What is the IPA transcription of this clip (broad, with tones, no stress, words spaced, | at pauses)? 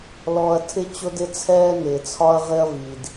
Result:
lɔ˨ɐ̯ tʰɪ˦t͡ɕʊ˦dɪ˦t͡sʰɛː˦ nɪː˨t͡sʰɒ˦ɐ̯ ʁɪ˦ɐ̯vi˨d